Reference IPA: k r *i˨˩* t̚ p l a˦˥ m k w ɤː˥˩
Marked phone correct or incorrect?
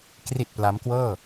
correct